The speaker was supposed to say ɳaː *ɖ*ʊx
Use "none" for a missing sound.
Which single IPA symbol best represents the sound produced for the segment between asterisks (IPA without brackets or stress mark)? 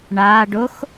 ɖ